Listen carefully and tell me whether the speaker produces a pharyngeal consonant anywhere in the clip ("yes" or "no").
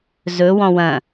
no